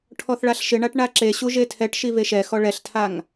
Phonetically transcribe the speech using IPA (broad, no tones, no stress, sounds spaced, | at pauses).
ʈʰ ɔ θ ɭ a ɬ ʃ ɪ ɳ a ʈ ɳ a ǁ e ɕ u ʒ e tʰ ɛ ʈ ʃ i v e ʃ ɛ x ɔ ɭ ɛ ɬ tʰ a ŋ